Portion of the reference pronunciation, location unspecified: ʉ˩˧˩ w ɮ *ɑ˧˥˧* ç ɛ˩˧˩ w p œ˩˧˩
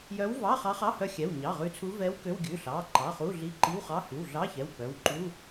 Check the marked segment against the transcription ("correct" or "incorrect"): correct